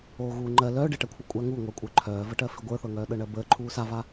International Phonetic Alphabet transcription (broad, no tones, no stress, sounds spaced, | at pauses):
oː ɣ uː ŋ͡ǃ ɜ l œː ɖ e ʈ ɜ kʷʰ œ kʷʼ a ŋ u ŋʷ ə˞ kʷʼ ə˞ ǃʰ œː v ə ʈ ɜ f i ɡʷ ə˞ θ ɤ ŋ œː ɗ ɤ ɳ ɜ b əː ǃʰ uː s a v a